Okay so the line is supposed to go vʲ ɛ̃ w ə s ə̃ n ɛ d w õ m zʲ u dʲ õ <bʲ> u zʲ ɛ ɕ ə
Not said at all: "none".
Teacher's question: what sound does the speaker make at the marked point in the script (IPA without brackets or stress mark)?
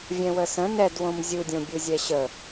bʲ